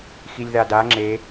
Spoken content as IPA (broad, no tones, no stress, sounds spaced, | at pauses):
x i lʲ ð a d a ŋ͡ǁ e